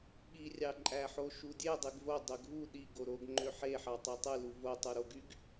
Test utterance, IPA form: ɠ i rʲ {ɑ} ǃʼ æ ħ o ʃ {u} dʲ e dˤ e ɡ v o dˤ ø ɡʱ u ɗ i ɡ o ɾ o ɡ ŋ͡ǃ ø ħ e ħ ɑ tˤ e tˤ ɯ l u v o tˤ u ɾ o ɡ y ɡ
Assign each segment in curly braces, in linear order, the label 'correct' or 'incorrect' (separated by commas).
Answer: correct, correct